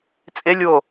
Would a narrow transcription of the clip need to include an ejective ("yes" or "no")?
yes